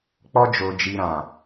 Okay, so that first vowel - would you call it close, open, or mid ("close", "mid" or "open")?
mid